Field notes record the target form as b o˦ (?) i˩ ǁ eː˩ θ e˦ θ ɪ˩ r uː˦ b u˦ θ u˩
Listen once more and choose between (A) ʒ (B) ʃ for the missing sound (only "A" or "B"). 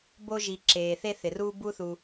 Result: A